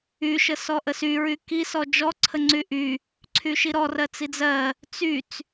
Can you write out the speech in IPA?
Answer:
y ʃ ə s ɔ ʔ ə s y ɹ y k i s ɔ d͡ʒ ɔ ǀʰ ə ŋ͡ǀ y ʔ y | ǀʰ y ʃ i ɾ ɔ r ɜ t͡s i d͡z ɜ | t͡s y t͡s

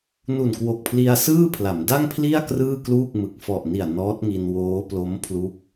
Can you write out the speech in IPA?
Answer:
n u˨˩ n k w o˨˩ k̚ pʰ l i˧ a̯ s ɯː˥˩ pʰ l a˩˦ m d a˥˩ ŋ pʰ l i˥˩ a̯ k r ɯː˥˩ k l uː˥˩ k̚ m ɯ˨˩ k̚ f ɔ˨˩ ʔ n i˨˩ a̯ n ɔː˦˥ t̚ ŋ i˧ n w oː˦˥ p l o˦˥ m pʰ l u˦˥ k̚

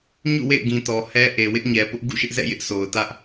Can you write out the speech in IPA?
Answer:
ɲ ṵ˦˨ w ḛ˦˨ ɪ̯ ɡ ĩ˨ t ɔ˨ h ɛ˦ ʔ e˨ w ɪ˦ ʔ ɲ ɛ˨ p ʊ˦ ʔ ɡ ṵ˦˨ ʃ ɪ˦ ʔ z ɛ̰˦˨ j ɪ˦ ʔ s o˨ ʊ̯ t ä˦ ʔ

